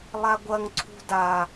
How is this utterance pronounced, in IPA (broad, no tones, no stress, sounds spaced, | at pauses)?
lˠ a ɡʷ ɐ ŋ ǀʰ ṳ d a